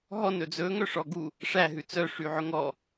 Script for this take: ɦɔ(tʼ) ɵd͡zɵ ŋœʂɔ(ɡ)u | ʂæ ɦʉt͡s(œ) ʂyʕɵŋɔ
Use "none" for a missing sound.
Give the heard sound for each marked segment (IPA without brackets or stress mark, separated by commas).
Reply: n, ɡ, œ